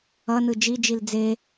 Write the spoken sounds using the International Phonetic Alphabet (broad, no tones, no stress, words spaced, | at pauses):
ʌnɯ d͡ʒid͡ʒil d͡ze